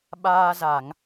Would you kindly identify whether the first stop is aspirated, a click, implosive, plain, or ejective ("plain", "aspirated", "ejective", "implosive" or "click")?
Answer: implosive